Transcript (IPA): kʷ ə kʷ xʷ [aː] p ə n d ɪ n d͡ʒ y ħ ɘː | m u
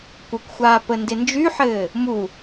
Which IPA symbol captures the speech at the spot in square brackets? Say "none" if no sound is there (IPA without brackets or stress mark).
aː